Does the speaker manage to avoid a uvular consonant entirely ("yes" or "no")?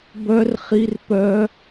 no